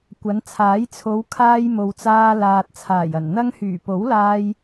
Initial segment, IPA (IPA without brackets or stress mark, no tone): kʷ